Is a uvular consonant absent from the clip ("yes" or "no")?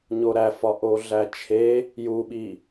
yes